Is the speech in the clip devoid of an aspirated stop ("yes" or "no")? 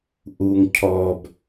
no